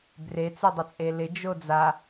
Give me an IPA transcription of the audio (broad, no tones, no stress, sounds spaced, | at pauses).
b r e t͡s e dˤ ə t͡sʼ e l ɪ d͡ʒ o d͡z a